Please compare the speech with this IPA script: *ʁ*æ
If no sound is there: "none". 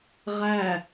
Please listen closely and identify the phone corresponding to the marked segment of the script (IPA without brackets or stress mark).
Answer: ʁ